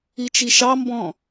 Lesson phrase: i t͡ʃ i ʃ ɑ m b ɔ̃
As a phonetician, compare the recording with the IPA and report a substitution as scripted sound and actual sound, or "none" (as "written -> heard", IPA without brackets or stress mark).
none